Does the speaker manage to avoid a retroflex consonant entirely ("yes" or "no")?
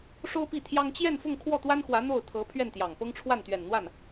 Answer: no